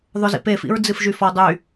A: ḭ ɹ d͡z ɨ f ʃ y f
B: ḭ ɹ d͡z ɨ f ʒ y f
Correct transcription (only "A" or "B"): B